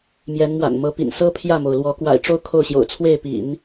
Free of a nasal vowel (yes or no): yes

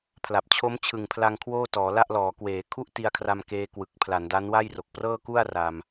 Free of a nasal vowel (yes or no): yes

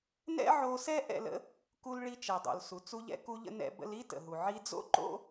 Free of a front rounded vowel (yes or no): yes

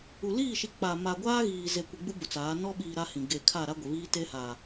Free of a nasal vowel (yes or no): no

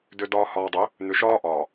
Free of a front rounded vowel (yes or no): no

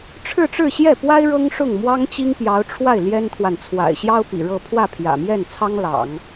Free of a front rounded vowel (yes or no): yes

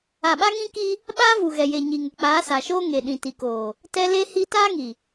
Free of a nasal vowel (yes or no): no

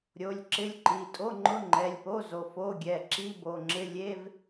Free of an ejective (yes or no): no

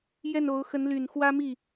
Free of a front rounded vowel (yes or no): no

